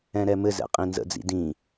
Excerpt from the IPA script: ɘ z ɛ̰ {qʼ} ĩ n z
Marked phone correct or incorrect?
correct